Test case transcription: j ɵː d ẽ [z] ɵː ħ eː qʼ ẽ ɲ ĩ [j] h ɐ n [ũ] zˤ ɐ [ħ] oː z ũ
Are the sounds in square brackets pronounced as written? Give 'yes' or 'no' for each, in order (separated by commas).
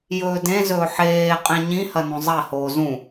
yes, no, no, no